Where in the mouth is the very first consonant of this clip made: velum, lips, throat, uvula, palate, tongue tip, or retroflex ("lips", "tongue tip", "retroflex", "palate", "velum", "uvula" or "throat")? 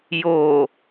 palate